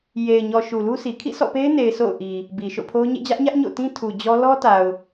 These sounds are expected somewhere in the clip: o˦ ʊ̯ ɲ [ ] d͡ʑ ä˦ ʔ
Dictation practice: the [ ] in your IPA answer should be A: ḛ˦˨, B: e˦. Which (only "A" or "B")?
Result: A